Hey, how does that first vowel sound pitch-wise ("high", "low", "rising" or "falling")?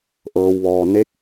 low